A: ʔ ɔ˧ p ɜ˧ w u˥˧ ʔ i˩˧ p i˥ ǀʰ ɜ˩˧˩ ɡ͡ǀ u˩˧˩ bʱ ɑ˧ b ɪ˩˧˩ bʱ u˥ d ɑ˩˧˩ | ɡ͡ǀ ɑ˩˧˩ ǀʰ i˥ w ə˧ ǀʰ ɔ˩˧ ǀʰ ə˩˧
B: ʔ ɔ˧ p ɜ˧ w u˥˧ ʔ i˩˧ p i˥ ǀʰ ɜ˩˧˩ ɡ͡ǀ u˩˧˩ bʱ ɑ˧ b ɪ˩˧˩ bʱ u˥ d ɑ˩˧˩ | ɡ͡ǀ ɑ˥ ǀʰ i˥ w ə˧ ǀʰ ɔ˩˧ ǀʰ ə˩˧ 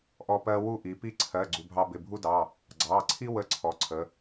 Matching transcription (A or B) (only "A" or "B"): A